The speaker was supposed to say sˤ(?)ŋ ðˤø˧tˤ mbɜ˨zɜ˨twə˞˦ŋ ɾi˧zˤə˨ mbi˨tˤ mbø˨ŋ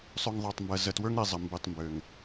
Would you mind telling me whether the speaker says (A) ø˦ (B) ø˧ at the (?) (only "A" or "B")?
B